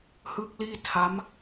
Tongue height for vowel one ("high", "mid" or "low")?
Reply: high